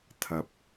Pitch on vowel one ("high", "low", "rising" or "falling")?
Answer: rising